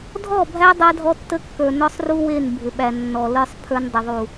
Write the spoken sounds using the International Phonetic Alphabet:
dʱɔ˦˨bʱæ˦ dˤa˦dʱɔ˦tːə˦ kːə˞˨nɔ˦sˤru˦ we˦˨nbʱɪ˨ɓæ˨ nːɔ˨lə˞˦sˤ pʰə˞˦ndˤə˨ðˤu˨

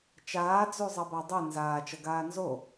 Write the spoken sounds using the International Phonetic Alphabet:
t͡ʃaːd͡zuzˤʌ badˤɯ nzaːt͡ʃʌ ɡaːnzo

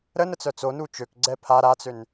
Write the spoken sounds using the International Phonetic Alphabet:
ɾənə t͡sœt͡sonu t͡ʃøkɡ͡ǀɛ pʰa ɾat͡søn

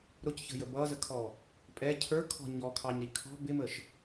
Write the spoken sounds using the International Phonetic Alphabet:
ɾʊcçə̤jə bʌzəkʰɔ | pʼɛ cʰə˞kʰɔ̤ ɲɔkʰɑɲɾi kʰɔ̤ bɪməʃ

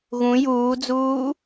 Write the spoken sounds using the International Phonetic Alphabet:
ɣũ juːd͡zuː

